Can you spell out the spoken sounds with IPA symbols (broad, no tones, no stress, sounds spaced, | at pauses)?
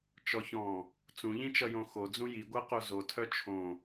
t͡ʃ ɔ ç ɔ̃ | t͡s ũ ʎ ĩ t͡ʃ ʌ j õ x o d͡z ũ j i ɡʷ a q o z o tʰ œ t͡ʃʰ õ